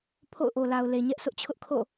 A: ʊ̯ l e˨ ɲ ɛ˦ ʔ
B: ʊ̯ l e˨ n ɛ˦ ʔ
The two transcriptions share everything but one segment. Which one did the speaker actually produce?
A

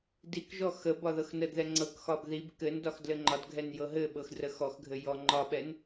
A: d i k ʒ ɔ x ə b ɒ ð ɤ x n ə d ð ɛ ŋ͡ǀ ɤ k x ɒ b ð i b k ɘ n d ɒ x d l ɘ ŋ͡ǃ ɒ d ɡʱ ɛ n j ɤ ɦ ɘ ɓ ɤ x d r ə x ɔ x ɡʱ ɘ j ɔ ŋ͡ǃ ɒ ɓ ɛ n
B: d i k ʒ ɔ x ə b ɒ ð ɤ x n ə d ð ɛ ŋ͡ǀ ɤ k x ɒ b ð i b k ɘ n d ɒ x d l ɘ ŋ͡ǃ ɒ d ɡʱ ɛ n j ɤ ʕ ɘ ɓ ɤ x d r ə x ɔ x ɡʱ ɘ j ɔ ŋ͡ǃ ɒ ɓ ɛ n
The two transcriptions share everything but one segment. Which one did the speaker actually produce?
A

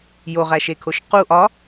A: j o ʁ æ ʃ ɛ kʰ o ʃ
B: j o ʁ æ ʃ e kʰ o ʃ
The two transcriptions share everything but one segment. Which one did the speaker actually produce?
B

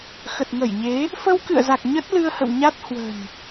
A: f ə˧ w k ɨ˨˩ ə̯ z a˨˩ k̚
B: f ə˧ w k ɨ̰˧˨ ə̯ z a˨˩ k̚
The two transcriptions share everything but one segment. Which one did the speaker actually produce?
B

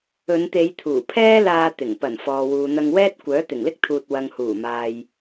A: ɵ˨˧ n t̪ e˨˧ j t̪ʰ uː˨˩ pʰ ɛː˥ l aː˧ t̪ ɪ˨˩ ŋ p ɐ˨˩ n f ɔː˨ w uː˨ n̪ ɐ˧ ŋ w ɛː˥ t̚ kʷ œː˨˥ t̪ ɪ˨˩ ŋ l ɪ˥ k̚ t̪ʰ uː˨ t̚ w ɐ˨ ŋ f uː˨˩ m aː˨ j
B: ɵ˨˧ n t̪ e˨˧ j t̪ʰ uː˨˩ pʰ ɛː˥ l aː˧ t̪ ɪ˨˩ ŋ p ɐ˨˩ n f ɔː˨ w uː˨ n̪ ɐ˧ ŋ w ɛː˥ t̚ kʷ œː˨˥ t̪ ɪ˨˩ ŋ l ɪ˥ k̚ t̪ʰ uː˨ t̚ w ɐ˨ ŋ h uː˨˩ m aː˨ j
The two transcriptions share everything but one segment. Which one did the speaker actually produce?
B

